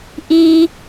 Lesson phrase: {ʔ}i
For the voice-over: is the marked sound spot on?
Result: yes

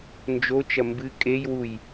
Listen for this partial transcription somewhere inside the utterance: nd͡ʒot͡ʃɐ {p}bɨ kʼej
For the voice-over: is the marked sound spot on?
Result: no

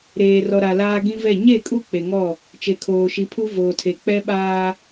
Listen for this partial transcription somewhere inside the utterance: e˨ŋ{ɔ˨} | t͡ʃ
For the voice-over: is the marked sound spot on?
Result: no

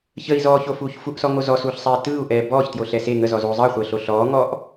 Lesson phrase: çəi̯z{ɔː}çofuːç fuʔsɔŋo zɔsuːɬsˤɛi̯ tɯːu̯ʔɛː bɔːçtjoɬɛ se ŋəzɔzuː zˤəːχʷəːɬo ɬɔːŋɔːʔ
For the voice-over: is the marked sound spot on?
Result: yes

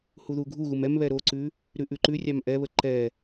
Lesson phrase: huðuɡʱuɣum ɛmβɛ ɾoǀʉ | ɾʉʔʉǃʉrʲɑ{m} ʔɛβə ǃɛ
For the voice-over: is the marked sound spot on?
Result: yes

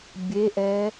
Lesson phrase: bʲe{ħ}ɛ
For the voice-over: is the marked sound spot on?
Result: no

